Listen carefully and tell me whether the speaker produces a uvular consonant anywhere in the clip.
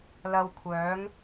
no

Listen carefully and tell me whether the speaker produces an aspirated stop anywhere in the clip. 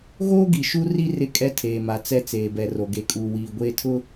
yes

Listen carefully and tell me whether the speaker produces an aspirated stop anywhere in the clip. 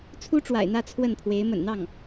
yes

